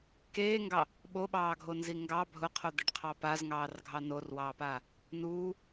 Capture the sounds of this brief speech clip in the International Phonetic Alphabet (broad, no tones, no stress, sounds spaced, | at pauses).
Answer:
k eː ŋ ɡ ɑ | ɓ o ɓ ɑː ɡʱ o n z i ŋ ɡ ɑ bʱ ʊ qʰ o d̪ e ɖ qʰ ɑ p a z ŋ ɑː r ɡʱ ɑ n o r w ɑː p a | n uː